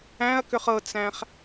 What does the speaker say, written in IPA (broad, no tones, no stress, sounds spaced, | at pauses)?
æ̃ ɐ̯ k ʏ χ ɤ t͡s æ̃ χ